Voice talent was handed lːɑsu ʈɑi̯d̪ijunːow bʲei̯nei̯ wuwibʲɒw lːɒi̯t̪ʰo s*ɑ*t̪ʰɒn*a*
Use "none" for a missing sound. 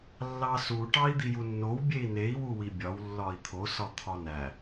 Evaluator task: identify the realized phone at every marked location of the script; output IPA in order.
ɒ, æ

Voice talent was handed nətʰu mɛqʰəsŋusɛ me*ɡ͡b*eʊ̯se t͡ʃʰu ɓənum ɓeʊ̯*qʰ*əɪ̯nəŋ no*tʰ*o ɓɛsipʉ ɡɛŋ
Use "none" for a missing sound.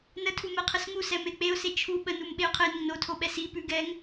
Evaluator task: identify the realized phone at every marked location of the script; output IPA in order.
k͡p, qʰ, tʰ

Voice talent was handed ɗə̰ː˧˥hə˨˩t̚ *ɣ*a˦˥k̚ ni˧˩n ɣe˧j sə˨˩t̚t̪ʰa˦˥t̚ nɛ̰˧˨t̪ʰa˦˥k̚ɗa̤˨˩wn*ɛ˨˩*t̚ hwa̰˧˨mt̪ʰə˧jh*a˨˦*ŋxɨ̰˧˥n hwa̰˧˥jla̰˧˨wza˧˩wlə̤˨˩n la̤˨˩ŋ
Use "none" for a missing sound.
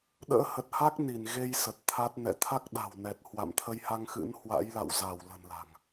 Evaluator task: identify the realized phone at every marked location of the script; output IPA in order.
h, ɛ˨˩, a˧

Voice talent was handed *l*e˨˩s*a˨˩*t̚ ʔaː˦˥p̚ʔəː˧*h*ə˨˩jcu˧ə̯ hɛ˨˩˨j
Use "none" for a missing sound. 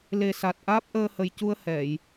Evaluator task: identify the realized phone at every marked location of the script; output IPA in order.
l, a˨˩, h

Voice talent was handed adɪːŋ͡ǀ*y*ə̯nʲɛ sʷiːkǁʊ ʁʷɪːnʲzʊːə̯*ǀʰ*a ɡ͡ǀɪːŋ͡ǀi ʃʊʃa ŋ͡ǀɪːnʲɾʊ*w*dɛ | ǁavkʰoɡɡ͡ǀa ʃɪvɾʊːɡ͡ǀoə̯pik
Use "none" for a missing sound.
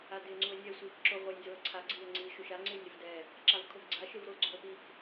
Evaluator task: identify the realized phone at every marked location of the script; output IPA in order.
u, ǀʰ, v

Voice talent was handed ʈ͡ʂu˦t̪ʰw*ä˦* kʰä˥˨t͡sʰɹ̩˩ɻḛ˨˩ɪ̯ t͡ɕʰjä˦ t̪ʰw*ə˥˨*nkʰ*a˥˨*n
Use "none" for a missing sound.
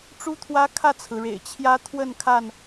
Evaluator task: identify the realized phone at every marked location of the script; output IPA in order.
ä˦, ə˥˨, a˥˨

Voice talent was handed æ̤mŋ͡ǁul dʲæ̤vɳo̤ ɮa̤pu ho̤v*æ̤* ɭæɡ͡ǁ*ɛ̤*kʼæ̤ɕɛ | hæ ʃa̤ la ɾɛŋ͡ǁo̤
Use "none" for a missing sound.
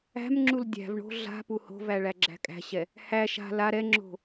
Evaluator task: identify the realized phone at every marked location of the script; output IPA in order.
æ, æ̤

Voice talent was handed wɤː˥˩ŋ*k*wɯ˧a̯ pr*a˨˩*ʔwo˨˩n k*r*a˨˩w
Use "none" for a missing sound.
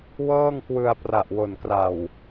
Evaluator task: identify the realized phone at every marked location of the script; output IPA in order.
k, a˨˩, r

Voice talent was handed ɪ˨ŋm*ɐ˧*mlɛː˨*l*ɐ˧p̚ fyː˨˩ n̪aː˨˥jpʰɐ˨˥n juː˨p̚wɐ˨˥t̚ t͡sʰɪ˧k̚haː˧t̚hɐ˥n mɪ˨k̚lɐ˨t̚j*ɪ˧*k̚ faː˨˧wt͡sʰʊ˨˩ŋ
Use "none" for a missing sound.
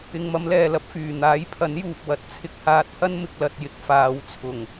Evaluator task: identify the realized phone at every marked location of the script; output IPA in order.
ɐ˨˧, l, ɪ˧

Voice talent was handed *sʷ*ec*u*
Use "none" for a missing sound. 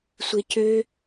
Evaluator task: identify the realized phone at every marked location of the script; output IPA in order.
sʷ, ø

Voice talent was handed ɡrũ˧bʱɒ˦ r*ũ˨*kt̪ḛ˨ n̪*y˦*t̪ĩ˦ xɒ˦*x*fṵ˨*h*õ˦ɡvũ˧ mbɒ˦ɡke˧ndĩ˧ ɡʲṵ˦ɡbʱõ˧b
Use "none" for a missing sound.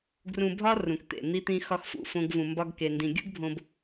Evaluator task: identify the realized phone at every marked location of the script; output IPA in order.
ũ˨, i˦, x, f

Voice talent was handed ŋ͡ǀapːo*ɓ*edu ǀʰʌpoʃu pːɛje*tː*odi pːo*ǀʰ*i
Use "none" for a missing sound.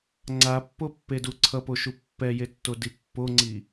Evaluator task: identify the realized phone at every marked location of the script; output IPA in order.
pː, tː, ŋ͡ǀ

